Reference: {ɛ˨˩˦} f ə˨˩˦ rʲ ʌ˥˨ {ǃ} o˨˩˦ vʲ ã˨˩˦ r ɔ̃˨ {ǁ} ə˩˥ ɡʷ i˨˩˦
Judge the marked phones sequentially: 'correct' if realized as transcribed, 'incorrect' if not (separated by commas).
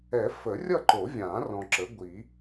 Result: correct, correct, correct